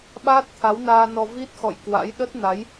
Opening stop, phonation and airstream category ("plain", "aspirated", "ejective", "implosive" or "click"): implosive